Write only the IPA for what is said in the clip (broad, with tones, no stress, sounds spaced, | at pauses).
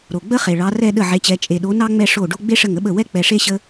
ɾ o˨˩ ɡ͡b ə˥ χ e˨˩ ɭ ɑ˨˥ r ɛ˥˧ ɗ ə˥˩ ʕ e˨˥ t͡ɕ ɛ˨˥ t͡ʃʼ e˨˩ ɗ o˨˥ n ɑ˥ ŋ͡m ɛ˥˧ ʂ o˥˩ ɖ o˥ ɡ͡b e˥ ʂ ə˥˩ ŋ ə˥ ɓ ə˥˩ w ɛ˥ k͡p ɛ˨˩ ʂ e˥˧ ɕ ə˥